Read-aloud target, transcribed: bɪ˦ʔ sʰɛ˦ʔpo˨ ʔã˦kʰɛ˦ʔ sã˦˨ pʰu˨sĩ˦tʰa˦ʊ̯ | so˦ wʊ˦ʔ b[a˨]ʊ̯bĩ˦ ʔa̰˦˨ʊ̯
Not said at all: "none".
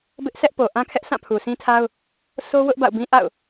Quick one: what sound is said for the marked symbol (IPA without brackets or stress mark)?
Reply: a̰˦˨